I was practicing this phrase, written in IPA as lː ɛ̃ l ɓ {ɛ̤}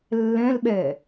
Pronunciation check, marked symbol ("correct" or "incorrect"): incorrect